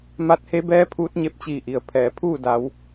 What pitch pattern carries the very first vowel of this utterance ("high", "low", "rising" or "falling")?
rising